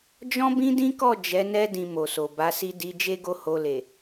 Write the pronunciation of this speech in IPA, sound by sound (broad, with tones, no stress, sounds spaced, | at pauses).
d͡ʒ ɔ̃˦ b ĩ˦ d ĩ˦ k ɔ˦˨ d͡ʒ ɛ˨˦ n ɛ˦ d ĩ˧ m o˨ s o˨ b a˨˦ s i˦ d i˧ d͡ʒ e˦ ɡ o˦˨ h o˧ l e˨